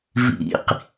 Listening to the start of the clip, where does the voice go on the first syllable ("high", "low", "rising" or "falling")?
low